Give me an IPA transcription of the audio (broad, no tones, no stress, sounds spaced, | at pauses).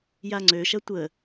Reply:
j a ŋ͡ǀ ø ʃ ɐ tʷ ə